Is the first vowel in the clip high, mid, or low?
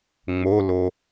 mid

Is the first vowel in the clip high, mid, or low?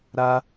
low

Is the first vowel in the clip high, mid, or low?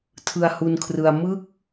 high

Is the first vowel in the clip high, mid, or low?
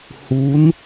high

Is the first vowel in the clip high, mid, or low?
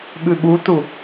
high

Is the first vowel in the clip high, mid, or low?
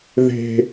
mid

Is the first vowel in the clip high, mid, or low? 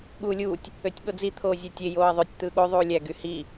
high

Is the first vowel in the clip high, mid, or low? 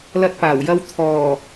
low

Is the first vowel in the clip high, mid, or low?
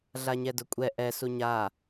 low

